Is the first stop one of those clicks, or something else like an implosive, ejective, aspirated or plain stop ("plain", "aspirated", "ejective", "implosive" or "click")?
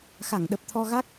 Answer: implosive